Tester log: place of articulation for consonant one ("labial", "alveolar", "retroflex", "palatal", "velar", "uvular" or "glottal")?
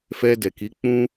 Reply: labial